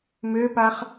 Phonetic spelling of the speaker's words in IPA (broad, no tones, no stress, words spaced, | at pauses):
møpaχ